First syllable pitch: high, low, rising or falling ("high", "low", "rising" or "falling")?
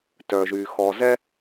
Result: low